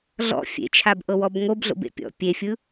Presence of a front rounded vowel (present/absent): absent